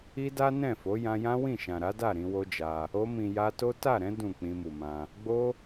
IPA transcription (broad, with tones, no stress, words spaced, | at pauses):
i˦da˦nɛ̃˦˨fo˨˦ jã˧jã˦ wĩ˦˨ʃã˨ɾa˨˦da˦˨ ɾĩ˧wo˦d͡ʒa˧ | o˧mĩ˨ja˧to˦ ta˦˨ɾɛ̃˨˦ dũ˦˨ k͡pĩ˧mu˨mã˧ | ɡ͡bo˦